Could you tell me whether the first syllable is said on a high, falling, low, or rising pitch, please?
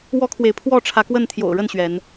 high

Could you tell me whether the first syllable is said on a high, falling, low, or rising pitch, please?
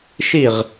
falling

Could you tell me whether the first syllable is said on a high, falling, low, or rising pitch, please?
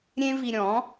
high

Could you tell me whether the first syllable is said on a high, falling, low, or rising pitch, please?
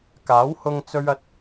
rising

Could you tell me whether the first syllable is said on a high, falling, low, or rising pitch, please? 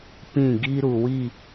falling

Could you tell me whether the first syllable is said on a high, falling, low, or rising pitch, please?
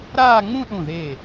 falling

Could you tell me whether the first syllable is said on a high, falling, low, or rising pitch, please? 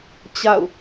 falling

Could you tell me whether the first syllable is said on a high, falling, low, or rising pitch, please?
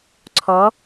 rising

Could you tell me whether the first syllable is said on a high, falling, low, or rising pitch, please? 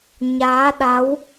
rising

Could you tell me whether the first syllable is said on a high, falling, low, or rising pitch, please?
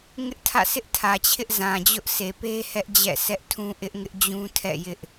high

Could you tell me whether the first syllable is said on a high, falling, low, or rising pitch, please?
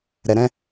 low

